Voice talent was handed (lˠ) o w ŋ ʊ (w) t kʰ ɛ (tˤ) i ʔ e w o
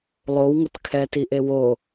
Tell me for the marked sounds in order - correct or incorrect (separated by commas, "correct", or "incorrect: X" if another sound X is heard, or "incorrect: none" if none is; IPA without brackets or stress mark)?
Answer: correct, incorrect: none, incorrect: t